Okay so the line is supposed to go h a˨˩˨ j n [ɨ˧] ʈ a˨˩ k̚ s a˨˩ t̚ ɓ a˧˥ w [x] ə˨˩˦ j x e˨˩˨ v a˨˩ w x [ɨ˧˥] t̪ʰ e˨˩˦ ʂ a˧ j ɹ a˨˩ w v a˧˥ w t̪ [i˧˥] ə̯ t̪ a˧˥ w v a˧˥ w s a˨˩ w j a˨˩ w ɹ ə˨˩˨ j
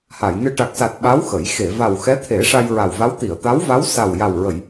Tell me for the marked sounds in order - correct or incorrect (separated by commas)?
correct, correct, incorrect, incorrect